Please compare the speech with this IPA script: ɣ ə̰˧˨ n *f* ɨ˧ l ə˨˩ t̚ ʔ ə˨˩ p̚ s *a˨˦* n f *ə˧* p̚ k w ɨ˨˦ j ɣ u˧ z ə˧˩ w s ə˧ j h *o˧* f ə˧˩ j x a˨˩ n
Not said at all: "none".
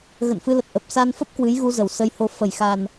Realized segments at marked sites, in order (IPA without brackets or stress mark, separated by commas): f, a˧, ə˦˥, o˧